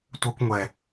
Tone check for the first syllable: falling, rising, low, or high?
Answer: high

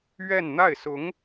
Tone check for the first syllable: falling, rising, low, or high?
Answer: falling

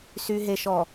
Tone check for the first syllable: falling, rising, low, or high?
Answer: low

